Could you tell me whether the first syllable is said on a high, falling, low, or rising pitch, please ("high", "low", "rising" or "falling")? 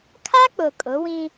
high